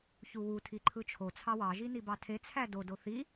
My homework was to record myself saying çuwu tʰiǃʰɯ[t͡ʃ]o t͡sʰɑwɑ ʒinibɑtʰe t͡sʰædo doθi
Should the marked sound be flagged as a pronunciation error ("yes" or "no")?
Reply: yes